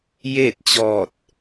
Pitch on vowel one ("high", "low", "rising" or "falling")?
falling